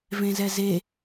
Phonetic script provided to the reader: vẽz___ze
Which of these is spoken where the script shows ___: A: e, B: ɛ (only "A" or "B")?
B